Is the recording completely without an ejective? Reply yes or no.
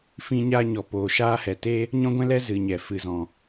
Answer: yes